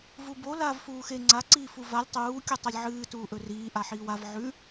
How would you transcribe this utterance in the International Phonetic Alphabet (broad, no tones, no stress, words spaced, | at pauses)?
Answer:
vubo lav fuːxe ŋ͡ǀa ǀiːfuvalʲ tˤuː kʲutˤɐlʲʕɨː tuːʔɵriː ʔaħiːwav ʕʉ